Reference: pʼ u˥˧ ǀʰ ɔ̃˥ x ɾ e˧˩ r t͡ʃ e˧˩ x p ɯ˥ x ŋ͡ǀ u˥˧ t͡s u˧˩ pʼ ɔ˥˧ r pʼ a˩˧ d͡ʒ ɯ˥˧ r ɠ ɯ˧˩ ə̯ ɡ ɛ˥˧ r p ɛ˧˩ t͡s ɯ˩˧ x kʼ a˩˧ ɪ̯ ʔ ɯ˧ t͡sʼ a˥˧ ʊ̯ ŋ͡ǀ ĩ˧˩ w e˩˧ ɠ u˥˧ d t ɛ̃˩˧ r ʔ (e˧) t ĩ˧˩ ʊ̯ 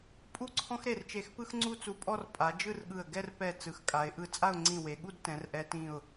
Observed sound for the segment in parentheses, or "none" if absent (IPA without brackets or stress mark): ɛ˧